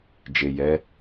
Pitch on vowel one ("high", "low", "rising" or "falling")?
low